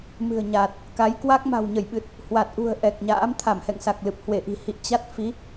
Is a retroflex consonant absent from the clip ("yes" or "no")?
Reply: yes